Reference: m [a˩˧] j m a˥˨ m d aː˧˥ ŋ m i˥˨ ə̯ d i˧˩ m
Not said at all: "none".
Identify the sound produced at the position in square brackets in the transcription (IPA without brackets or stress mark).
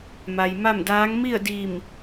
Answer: a˩